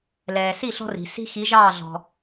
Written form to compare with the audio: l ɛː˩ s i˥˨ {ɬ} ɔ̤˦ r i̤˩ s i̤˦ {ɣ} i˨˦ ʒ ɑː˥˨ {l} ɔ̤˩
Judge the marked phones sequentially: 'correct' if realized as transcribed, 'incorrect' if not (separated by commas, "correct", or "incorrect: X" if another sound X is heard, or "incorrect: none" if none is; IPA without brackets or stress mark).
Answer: correct, incorrect: x, incorrect: ɮ